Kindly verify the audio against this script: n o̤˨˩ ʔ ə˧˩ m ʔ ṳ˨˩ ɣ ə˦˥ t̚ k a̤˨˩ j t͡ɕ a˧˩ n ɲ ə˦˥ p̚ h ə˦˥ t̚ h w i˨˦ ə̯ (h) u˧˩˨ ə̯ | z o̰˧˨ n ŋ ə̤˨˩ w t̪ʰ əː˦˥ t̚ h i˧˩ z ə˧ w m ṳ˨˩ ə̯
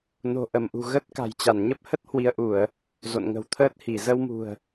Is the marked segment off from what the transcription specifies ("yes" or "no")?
yes